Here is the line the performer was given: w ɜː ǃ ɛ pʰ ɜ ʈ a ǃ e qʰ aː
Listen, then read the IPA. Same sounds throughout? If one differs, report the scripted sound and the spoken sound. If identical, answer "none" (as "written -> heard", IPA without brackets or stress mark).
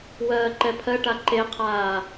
none